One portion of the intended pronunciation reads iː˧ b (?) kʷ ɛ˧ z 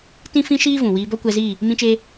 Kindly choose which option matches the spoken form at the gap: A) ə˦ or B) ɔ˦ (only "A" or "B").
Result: B